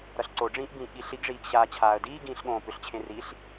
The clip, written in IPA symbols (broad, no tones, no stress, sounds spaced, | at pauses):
ɾ ʌ ɬ ǀ o ɖ͡ʐ ĩː ʔ b ĩː ʔ ɠ i ɬ i ɡ ʐ iː ɡ ɕ aː t͡ɕʰ aː ə̯ d iː ɡ ĩː ɬ ɠ õː p ʏ ɬ t͡ɕʰ ẽ r i ɬ